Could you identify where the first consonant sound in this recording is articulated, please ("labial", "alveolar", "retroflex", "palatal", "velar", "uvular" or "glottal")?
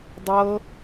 alveolar